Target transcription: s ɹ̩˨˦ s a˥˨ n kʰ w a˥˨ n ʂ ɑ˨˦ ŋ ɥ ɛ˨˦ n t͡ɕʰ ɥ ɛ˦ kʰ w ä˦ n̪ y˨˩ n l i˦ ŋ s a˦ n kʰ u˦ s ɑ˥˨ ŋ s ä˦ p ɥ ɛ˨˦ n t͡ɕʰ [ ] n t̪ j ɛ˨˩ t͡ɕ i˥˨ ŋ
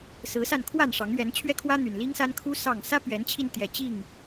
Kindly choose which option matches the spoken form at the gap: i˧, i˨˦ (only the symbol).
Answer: i˧